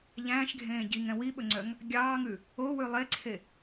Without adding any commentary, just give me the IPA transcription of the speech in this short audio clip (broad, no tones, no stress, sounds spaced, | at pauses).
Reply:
ʎ æ̃ː ʃ ɡʱ ẽː ɟ i ŋ ɛ̃ w i ɓ ɵ ŋ͡ǀ œ ŋ | ɡʲ ɑː ŋ ʉ | o w ʉ lˠ e ǀʰ e